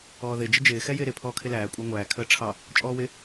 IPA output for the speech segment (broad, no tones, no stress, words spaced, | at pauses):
ɔːðɪ d͡ʒəd͡ʒɪː xɛjɪːɾɪ pʰɔːkʰɪlæː kʷʼɑŋʷæː kʰəːʈ͡ʂʰɑ | t͡ʃʼɔːwɪ